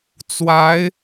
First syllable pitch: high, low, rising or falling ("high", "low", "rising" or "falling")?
rising